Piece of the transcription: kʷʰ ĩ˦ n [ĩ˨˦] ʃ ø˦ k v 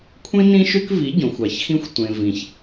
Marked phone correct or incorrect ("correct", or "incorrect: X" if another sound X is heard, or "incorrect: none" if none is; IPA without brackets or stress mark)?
incorrect: ĩ˦